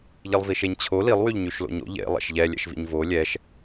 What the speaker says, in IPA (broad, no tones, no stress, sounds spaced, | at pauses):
ʎ i lˠ v i ʃ e ɲ t͡ɕʰ o l i lˠ w y ʎ ɲ y ʃ l o̰ ɲ o̰ ʎ ḛ lˠ ɛ̰ ʃ ʎ ɛ lʲ ɛ̰ ʃ v ḭ ɲ v o lʲ ɛ ʃ